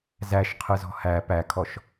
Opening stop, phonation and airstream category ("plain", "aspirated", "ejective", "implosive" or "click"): aspirated